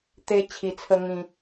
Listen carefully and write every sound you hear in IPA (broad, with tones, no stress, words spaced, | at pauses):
t̪e˦t͡ɕʰi˧t͡sʰə˦ ŋĩ˧